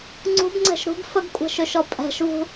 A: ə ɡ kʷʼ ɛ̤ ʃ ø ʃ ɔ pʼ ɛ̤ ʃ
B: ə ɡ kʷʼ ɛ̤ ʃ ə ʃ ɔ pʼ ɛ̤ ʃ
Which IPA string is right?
A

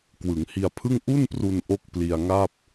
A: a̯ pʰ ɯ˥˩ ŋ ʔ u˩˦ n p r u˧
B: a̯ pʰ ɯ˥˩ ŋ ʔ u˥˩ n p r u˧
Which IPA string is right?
B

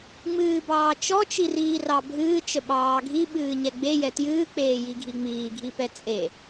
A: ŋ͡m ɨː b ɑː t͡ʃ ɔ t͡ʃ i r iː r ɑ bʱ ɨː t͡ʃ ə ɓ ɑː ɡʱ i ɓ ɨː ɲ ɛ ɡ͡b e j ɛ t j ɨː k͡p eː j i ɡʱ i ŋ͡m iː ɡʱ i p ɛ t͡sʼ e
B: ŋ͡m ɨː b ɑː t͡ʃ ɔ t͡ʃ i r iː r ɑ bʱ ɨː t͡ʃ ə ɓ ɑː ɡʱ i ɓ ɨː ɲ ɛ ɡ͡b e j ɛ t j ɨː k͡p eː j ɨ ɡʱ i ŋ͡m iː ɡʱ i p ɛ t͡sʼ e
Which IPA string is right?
A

